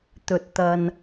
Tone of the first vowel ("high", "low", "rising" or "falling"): low